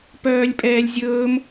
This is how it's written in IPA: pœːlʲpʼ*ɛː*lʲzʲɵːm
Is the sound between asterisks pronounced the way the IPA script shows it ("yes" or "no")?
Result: yes